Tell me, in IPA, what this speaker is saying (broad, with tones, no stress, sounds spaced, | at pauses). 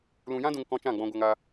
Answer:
l ũ˧ j ã˦ d ũ˧ ŋ k ɔ̃˧ t͡ʃ ã˦˨ ɡ͡b ɔ̃˧ ɡʷ a˧ ŋ a˧